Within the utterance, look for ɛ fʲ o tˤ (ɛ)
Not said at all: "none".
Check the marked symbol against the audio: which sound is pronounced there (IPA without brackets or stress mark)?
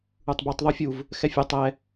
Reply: ɛ